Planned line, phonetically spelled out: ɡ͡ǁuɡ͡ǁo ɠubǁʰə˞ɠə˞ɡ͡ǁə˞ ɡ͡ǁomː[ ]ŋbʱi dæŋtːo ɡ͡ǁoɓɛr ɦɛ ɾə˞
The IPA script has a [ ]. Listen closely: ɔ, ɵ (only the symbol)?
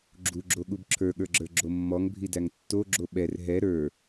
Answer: ɔ